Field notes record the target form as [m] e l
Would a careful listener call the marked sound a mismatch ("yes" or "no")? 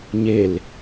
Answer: yes